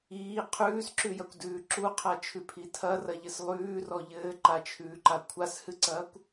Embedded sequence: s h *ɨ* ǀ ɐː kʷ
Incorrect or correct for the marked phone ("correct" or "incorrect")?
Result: correct